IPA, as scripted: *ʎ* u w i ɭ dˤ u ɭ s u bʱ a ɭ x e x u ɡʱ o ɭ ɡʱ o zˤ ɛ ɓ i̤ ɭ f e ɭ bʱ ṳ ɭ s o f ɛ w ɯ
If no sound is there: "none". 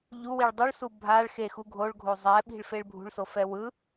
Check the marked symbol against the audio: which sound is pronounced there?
ʎ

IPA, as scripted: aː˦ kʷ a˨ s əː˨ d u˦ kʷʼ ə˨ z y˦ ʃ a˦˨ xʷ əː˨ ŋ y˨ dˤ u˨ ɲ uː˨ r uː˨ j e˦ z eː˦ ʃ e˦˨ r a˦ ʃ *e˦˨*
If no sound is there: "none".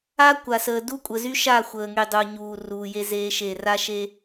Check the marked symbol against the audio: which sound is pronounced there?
e˦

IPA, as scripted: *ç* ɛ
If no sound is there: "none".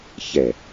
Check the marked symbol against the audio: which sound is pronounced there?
ç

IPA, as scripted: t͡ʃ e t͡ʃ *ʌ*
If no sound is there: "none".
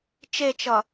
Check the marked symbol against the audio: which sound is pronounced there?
ʌ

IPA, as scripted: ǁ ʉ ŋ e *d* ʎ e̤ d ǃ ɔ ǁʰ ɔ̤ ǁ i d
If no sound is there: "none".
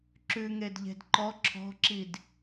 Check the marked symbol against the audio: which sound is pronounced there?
d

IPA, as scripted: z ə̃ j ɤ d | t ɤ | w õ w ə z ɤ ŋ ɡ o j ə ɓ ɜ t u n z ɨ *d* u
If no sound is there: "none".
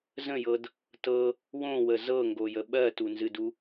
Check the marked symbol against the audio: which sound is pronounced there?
d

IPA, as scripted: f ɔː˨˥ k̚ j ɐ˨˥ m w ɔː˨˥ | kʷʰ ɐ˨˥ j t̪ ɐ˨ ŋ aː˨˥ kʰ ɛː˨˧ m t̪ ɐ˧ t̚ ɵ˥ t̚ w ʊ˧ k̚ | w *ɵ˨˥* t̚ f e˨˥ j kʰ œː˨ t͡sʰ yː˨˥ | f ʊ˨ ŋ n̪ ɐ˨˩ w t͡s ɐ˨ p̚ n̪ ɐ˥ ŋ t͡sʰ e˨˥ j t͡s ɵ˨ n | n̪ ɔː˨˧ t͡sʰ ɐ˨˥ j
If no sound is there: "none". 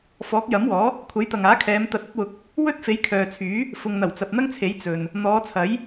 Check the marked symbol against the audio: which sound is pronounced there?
ɵ˥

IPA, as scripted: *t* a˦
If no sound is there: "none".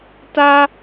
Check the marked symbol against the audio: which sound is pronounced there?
t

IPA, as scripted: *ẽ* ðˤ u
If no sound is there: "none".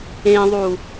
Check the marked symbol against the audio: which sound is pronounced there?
ẽ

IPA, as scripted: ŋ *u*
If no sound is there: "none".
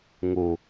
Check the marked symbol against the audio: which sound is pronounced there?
u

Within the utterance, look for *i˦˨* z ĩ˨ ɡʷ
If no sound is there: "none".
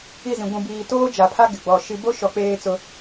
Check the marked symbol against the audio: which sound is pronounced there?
i˦˨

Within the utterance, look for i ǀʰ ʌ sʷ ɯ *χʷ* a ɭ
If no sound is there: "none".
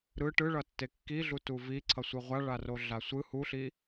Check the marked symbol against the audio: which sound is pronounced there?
ʁʷ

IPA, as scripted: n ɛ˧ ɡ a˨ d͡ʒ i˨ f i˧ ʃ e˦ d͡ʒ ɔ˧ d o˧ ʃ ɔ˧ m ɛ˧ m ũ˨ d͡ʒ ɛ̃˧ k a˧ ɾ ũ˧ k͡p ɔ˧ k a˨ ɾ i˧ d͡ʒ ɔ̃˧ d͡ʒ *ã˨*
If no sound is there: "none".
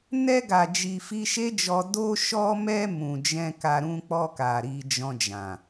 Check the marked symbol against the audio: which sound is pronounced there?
ã˨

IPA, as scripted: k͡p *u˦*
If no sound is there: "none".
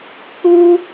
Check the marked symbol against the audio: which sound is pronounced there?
u˦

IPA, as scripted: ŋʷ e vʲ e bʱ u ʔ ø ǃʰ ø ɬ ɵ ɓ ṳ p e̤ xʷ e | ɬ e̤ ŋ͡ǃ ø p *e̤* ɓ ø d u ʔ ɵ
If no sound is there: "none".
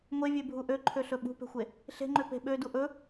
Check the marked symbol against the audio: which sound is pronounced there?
e̤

